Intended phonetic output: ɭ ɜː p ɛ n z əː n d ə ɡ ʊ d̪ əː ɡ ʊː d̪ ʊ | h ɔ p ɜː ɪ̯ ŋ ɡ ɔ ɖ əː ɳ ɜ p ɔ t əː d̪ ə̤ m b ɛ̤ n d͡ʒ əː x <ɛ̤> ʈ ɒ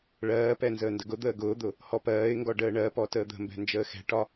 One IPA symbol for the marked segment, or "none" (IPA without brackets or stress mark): ɛ̤